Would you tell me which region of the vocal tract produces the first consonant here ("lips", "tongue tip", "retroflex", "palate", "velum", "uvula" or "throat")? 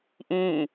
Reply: throat